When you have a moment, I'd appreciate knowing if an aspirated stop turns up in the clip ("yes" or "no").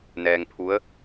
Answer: yes